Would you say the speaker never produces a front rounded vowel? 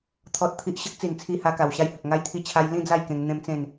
yes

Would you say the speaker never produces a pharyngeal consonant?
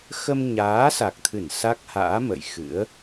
yes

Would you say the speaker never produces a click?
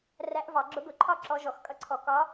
no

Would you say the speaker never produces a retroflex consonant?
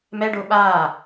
no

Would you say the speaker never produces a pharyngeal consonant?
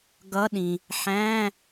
no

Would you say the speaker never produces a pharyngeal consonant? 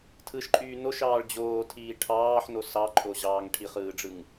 no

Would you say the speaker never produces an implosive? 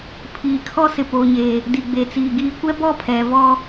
yes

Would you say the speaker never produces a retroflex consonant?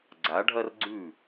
no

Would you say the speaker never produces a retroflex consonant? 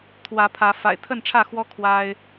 no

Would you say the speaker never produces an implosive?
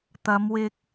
yes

